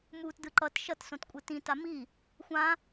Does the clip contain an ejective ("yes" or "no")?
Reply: yes